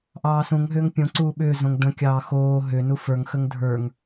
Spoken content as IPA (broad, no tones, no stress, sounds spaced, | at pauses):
ʔ ɑː s ũ ŋ ɦ ʏː ŋ pʲ õ ǀ uː ɓ ʏː z õ ŋ d ə̃ kʲ ɑː x oː ɦ ʏ n u f ə˞ ŋ x ə ŋ dʱ ə˞ ŋ